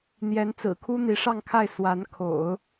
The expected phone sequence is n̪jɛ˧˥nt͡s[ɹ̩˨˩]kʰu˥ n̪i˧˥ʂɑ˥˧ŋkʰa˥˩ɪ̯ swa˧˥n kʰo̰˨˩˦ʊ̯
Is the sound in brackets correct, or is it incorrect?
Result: correct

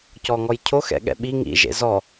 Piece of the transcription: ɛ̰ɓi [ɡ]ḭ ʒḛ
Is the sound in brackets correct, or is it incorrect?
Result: incorrect: ŋ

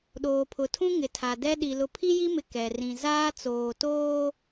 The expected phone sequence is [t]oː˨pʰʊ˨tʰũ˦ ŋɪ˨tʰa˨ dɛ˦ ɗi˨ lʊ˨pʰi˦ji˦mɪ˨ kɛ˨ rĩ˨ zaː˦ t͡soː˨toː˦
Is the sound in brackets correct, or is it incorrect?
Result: incorrect: ɗ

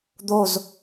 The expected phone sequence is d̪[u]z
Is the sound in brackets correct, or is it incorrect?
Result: incorrect: o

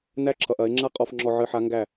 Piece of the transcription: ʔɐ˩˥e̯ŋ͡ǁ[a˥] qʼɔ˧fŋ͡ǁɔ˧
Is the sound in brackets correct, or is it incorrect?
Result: correct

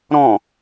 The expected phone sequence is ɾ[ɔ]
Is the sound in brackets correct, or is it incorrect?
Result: incorrect: ɔ̃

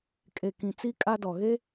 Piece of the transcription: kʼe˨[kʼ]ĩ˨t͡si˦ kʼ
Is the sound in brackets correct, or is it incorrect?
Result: incorrect: k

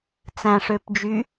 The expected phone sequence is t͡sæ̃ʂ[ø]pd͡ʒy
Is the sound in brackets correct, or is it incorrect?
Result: correct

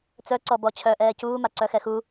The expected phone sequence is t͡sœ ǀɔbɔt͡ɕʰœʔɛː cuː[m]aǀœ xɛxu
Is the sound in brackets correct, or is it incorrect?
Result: correct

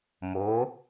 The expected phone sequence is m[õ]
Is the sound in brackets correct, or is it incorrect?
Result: incorrect: o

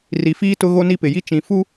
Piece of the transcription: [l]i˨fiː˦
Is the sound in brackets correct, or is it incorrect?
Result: incorrect: r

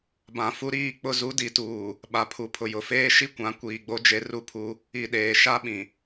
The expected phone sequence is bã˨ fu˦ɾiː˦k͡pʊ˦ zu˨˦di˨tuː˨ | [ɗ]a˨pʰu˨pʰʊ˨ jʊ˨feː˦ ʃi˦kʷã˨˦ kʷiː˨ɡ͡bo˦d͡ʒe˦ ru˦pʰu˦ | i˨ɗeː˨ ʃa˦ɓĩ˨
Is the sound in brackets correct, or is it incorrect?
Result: incorrect: ɓ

